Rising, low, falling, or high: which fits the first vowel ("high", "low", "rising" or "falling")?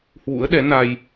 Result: rising